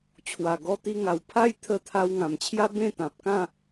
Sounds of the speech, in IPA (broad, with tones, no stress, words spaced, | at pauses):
t͡ɕʰwa˨˩ɡɔ˧t̪i˧ŋa˨˩w pʰa˥˧jt̪ʰə˧t̪ʰa˧w ŋã˨˩mt͡ɕʰja˦bẽ˥˧ t̪ã˨p̚ kã˥˧